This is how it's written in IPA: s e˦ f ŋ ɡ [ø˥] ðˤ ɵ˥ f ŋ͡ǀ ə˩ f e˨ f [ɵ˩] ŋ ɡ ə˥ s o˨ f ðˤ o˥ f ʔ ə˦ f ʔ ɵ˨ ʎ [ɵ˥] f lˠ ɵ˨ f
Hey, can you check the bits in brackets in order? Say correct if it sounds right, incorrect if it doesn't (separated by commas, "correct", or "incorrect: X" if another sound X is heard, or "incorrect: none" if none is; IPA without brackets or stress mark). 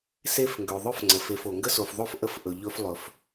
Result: incorrect: ø˩, incorrect: o˩, correct